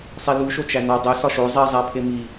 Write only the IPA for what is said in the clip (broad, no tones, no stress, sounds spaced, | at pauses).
sˤ i l u ʃ o t͡ʃ æ n ɒ dˤ e s ɒ ʃ o zˤ i zˤ æ pʰ e m i